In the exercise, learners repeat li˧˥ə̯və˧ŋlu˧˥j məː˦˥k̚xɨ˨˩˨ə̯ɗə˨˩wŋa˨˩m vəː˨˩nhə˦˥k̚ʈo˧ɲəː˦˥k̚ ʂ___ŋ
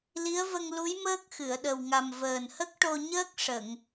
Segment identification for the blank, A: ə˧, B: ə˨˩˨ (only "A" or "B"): B